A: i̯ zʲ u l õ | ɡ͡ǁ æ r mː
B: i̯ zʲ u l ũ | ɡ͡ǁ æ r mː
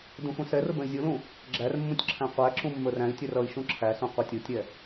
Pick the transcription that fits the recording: B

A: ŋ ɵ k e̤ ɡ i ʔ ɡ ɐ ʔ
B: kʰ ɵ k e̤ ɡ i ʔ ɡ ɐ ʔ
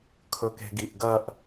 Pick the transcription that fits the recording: B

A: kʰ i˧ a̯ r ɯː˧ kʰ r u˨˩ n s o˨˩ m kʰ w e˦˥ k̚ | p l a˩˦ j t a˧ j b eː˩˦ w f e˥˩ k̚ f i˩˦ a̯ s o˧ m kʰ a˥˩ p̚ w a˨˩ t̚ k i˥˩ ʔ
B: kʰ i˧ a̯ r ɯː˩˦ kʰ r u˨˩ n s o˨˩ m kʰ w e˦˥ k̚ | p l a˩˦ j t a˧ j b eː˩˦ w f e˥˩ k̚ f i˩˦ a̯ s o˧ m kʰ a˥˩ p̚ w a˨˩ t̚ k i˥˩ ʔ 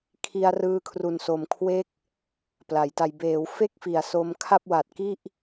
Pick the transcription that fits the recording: A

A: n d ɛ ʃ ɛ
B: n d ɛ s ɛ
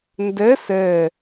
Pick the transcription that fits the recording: B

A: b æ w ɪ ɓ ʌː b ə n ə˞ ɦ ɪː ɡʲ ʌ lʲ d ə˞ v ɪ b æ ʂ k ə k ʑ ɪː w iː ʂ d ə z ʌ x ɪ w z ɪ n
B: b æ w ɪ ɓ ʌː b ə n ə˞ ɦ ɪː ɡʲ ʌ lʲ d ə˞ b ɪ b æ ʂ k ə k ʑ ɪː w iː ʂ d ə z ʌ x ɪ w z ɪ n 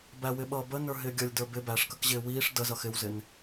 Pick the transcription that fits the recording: B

